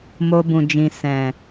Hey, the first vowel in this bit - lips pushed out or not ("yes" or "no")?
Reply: yes